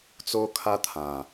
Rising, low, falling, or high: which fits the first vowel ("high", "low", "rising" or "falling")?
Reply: high